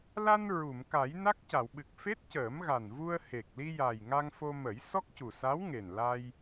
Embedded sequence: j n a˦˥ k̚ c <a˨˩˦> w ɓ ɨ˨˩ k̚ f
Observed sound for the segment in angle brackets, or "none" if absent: a˨˩˨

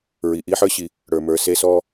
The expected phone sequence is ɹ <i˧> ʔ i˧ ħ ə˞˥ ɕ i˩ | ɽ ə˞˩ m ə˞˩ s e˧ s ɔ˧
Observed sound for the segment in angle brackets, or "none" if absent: i˩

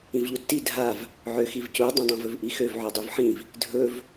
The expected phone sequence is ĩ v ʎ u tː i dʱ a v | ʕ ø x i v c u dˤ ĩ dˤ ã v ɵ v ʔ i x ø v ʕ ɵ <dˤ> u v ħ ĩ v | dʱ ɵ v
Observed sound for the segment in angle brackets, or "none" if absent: dˤ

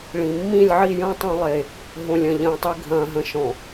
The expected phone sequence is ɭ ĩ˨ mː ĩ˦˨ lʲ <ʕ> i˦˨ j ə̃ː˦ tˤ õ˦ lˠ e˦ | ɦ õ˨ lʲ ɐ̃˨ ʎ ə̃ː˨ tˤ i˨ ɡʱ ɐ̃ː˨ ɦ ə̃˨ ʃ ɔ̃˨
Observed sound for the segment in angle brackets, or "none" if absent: ʕ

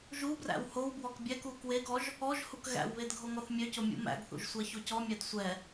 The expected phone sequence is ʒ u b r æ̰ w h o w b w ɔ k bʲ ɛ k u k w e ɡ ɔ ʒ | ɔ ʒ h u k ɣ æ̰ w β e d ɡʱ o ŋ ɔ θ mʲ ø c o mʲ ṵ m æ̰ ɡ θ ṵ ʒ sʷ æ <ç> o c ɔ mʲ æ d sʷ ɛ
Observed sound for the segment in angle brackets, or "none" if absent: ç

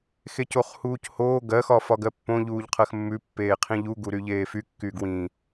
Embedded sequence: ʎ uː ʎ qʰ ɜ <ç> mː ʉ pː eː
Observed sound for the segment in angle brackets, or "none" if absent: x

